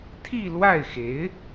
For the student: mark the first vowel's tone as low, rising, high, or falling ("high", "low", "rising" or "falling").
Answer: falling